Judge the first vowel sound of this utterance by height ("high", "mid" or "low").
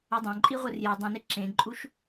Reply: mid